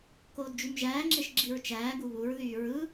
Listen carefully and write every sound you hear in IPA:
k oː d d͡ʒ y m ʒ æː ŋ͡ǁ e ʃ ɡ͡ǁ i ɹ t͡ʃ æː ɡ u β u ɹ ð yː ɹ ɯ

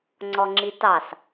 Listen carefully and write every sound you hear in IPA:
ŋ͡ǀ ɔ ŋ͡ǁ i t ɑ s

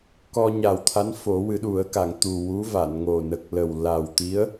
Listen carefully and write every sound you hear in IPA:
k ɔ˧ ɲ a˨˩ w t̪ʰ a˧˥ n f o˨˩˦ w ɨ˨˩˦ ɗ u˨˩˦ ə̯ k a˨˩˨ ŋ t̪ u˨˩ w u˧˥ v a˨˩˨ n ŋ o˨˩ n ə˨˩ k̚ l ə˨˩ w l a˨˩ w t̪ i˧˥ ə̯

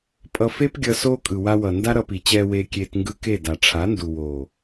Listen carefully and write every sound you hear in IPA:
pʼ ʌ˧ f e˦ p ɡʲ ʌ˧ s oː˦ kʼ ɯ˨ w a˧ w ʌ˨ n d a˦ ɾ ʌ˧ p i˨ t͡ɕ ɛː˧ w eː˧ kʲ eː˧ t ŋ ɡ ɯ˧ k e˦˨ d a˨ ʈ͡ʂʰ a˨˦ n d u˨ w oː˨

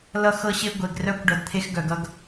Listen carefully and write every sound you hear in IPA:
l ʌ˧ x ɤ˧ ɕ e˧ ɡʷ e˩ ɡ r œ˧ kʷ ɖ ʌ˩ d t̪ʰ e˧ x ɡ œ˩ ɡ ʌ˧ ɡ

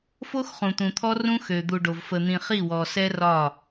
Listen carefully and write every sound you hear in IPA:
f o˦ x χ ũ˨ t̪ ũ˨ t̪ʰ ɔ˦ r ũ˦ x ø˨ d̪ u˨ ɖ o˨ v f ə˨ n̪ ĩ˨ χ i˦˨ w ɔ˨ s ɛ˦ r ɒ˦˨

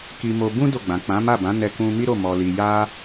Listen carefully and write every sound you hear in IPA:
k i˧ m o˧ b ũ˦ d o˦˨ ɡ͡b ã˨ k͡p ã˨˦ m a˦˨ b ã˨˦ n ɛ˧ k ũ˧ m i˦ ɾ o˦˨ m ɔ˨ l i˨ j a˧

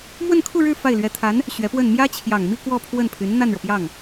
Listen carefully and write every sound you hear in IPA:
m w ə˥˧ n kʰ u˥˧ ɻ ɻ̩˥˧ f a˥˩ ɪ̯ l ɥ ɛ˧˥ t̪ʰ a˧˥ n | ɕ ɥ ɛ˧˥ p w ə˥˩ n m j ä˥ t͡ɕʰ j ɑ˨˩ ŋ m i˥˧ k w ɔ˥˧ pʰ w ə˥˩ n pʰ y˧˥ n n̪ a˥˩ n ɻ ɤ˩ p j ɑ˥˩ ŋ

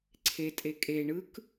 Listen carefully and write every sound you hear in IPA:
ǀʰ e tʼ e kʼ e ɳ ɯ k

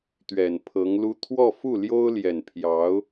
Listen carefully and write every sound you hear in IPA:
t̪ ɥ ɛ˨˩ n pʰ ɤ˧˥ ŋ l u˥ t̪ʰ w ɔ˥˧ f u˥˩ l j o˥ ʊ̯ l j ɛ˨˩ n pʰ j ɑ˧˥ ʊ̯

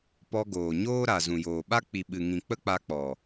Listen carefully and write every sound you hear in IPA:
p ɔ˧ ɡ oː˨ ɲ oː˦ ɾ a˨ z ũ˨ j oː˨ ɓ a˦ k͡p i˨ ɓ ɨ˨ ŋ ĩ˨ k͡p ə˦ k͡p a˧ k͡p ɔ˨

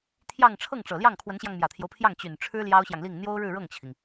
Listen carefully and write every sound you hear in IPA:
t̪ʰ j ɑ˥˧ ŋ ʈ͡ʂʰ ɤ˥˩ ŋ ʈ͡ʂ ɤ˨˩ l j ɑ˥˩ ŋ kʰ w ə˧˥ n ɕ j ɑ˧ ŋ m j ä˨˩ t̪ʰ j o˦ ʊ̯ pʰ j ɑ˥˩ ŋ t͡ɕ y˨˩ n ʈ͡ʂʰ ɻ̩˥ l j ɑ˥ ʊ̯ ɕ j ɑ˨ ŋ l i˥˩ ŋ n̪ j o˥ ʊ̯ ɻ ɻ̩˥˧ ɻ ɤ˥˩ ŋ t͡ɕʰ i˩ ŋ

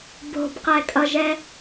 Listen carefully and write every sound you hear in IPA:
b o̤ b q ɛ kʼ ʌ ʒ ɛ

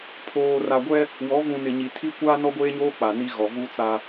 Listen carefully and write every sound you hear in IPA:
pʰ oː˨ r a˨ ɡʷ ɛ˦ | w ɔ˨˦ v ũ˨ n ɪ˨ ɲ i˨ tʰ i˦ kʷ aː˦ n ɔ˦ ɡʷ eː˦ ɲ oː˦ k͡p a˨ n i˦ ɣ ɔ˨ v u˦ t͡s a˦

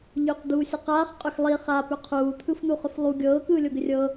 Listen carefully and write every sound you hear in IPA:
ʎ ʏ q d̪ uː sʲ ʌ q aː χ qʼ ʏ x lˠ i χ a p ʏ qʰ uː t̪ʰ ɯ f n̪ u χ ʏ f lˠ u ɡʲ ɤː k ɯː lʲ o ɡ ʏ rʲ ɤ

